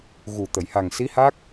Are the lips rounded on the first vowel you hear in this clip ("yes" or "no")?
yes